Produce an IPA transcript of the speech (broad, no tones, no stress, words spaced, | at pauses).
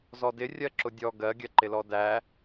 zɔdɪ rʲɜǁʊdʲɔ ɡɜɡʲɜǃɪlɔ dæ